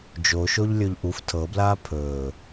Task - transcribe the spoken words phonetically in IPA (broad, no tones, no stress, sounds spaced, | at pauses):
d͡ʒ o ʃ o ʎ lʲ ɵ ʎ ʔ u f tʰ ɤ b l aː pʰ ɵː